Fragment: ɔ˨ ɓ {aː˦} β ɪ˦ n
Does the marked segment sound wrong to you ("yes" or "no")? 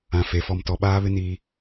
no